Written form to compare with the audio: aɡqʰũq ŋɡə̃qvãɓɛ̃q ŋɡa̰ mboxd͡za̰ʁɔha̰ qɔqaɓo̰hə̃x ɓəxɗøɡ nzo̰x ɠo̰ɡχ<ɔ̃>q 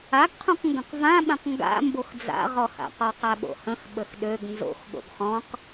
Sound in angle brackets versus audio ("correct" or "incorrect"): correct